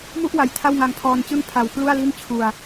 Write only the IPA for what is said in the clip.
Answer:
m u˥˩ ʔ w a˨˩ j tʰ a˥˩ w ŋ a˧ ŋ pʰ ɔː˧ n t͡ɕ ɯ˥˩ ŋ pʰ a˨˩ w k l u˥˩ a̯ l i˥˩ n t͡ɕʰ u˧ a̯

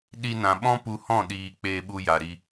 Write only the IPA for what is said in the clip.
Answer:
ɗ i˧ n ã˨ ɓ ɔ̃˦ p u˧ h ɔ̃˦˨ ɗ iː˨ k͡p eː˧ ɓ u˧ j a˨ ɾ i˧

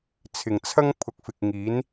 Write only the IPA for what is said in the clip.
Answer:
t͡sʰ ɪ˨˩ ŋ t͡sʰ ɐ˥ ŋ pʰ ʊ˨˥ k̚ f ɪ˨ k̚ ŋ iː˨˥ n

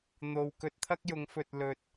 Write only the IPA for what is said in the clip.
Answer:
n̪ o˧ w k ɵ˧ t̚ t̪ʰ ɐ˥ k̚ j ʊ˨˧ ŋ f ɵ˨ t̚ l ɵ˨ t̚

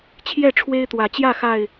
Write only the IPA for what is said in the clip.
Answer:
t͡ɕʰ j ɛ˥˨ ʈ͡ʂʰ w e˦ ɪ̯ t̪ w ä˨˦ t͡ɕ j ä˥˨ x a˥˨ ɪ̯

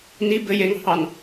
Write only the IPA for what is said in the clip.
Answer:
n i b ɘ j e ŋ ɑ̤ h ɑ n

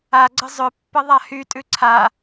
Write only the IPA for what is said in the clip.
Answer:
a ɡ͡ǀ ə zˤ ʏ pː ə ðˤ a h y tʼ ʉ ǀʰ a

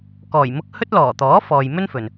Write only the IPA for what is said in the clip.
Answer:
k ɔː˨˩ j m ʊ˧ k̚ h ɵ˥ t̚ l ɔː˨˩ t̪ ɔː˨˥ f ɔː˨ j m ɵ˥ n f ɵ˨ n

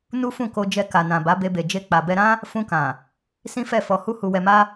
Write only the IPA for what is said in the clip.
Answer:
n u˦ f ũ˦˨ k o˧ d͡ʒ ɛ˧ k a˨ n ã˨ b a˨˦ b e˧ b e˨ d͡ʒ e˧ k͡p a˨ b ɛ˧ ɾ ã˦ | f ũ˧ k ã˨ | s ĩ˦ f ɛ˦˨ f ɔ˧ h u˦ h u˧ w ɛ˧ m a˦

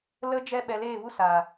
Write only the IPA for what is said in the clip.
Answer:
l ə˦ d͡ʒ ɛ˦ ɓ ɛ˧ l eː˦˨ v u˦ s aː˨

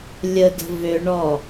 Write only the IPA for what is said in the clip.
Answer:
lʲ ə d ə̤ v ø ɳ ɔ

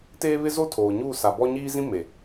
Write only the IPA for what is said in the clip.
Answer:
t eː˦ β ɪ˦ z o˦ tʰ oː˨ ɲ uː˦˨ s a˨ b ɔ˦ ɲ iː˦ z ĩ˦ m e˨

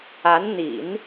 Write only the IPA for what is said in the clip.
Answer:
a˧˥ n n̪ ḭ˨˩˦ n

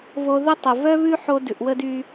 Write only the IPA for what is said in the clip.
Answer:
v o˧ ð ə˦ tˤ o˨ v œ˦ β ʉ˦ ħ o˧ d ʉ˨ ʔ w ə˦ d y˧

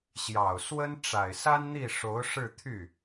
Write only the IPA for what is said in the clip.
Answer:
ɕ j ɑ˨˩ ʊ̯ s w ə˥ n ʈ͡ʂ a˨˩ ɪ̯ s a˥ n n̪ i˥˩ ʂ o˧˥ ʊ̯ ʂ ɻ̩˥˧ t̪ʰ y˥˩

